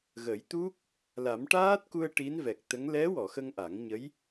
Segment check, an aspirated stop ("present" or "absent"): absent